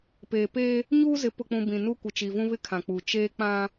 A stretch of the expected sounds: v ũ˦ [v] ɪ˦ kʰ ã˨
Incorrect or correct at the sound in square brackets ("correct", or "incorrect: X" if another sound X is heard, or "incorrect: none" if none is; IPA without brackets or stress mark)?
incorrect: β